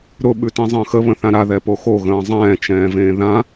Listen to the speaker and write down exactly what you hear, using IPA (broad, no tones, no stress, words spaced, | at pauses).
ɾʊ ɓʉtĩzˤə̃ːxə βə̃θãɾa ðɛpoxo ɣə̃ːzˤɛ̃ː t͡ʃɛ̃ːvẽːðã